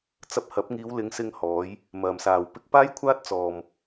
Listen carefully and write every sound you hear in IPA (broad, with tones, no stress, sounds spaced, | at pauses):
t͡s ɐ˧ p̚ h ɐ˨˥ p̚ ŋ iː˨˧ w l ɪ˨˧ ŋ s ɪ˧ ŋ h ɔː˨˧ j | m ɐ˧ m s aː˧ w p ɪ˥ k̚ p aː˥ j kʷʰ aː˥ t̚ t͡s ɔː˧ m